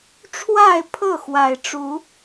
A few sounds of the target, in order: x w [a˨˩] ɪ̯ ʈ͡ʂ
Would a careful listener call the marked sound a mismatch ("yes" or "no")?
no